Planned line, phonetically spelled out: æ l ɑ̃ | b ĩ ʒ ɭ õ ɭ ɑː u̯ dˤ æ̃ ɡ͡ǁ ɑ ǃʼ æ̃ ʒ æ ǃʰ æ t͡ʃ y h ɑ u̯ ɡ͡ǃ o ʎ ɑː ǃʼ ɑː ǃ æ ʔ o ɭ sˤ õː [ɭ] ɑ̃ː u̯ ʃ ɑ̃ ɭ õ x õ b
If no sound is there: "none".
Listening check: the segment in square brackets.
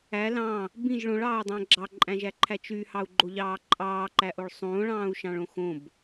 ɭ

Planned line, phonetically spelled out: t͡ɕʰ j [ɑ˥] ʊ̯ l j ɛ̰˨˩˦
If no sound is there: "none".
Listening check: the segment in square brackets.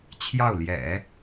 ɑ˥˩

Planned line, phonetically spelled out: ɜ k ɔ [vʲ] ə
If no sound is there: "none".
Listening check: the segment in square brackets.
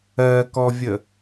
vʲ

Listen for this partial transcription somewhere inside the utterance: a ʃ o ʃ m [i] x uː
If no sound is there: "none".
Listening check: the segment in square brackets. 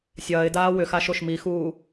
i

